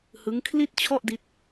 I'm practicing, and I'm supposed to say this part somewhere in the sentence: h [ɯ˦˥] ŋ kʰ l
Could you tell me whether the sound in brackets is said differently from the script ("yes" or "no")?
no